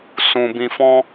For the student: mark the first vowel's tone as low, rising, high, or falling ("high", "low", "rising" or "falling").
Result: low